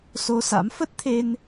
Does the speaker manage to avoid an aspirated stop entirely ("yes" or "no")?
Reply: no